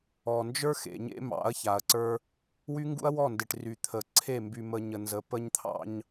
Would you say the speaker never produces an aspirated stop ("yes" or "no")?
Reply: no